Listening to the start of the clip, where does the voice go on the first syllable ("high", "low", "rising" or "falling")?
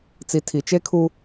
low